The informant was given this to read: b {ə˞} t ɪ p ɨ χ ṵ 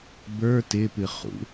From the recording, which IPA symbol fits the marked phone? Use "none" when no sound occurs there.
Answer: ə˞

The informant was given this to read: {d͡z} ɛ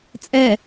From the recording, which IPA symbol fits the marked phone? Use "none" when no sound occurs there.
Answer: t͡sʼ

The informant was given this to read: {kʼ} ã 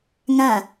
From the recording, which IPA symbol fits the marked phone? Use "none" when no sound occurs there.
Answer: ŋ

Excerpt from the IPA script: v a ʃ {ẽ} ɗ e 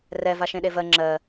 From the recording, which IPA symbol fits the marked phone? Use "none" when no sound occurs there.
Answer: ẽ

